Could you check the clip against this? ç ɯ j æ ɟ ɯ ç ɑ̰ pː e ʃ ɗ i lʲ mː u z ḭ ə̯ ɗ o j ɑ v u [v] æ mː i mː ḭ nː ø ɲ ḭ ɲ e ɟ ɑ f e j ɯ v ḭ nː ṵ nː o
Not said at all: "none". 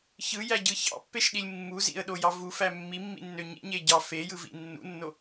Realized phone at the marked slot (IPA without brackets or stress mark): f